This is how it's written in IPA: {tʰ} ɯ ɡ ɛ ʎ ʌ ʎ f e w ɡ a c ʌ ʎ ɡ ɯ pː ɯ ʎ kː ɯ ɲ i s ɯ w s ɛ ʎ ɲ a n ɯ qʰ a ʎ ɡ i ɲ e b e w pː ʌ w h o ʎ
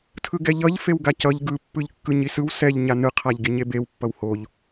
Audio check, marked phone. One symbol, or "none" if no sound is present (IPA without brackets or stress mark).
tʰ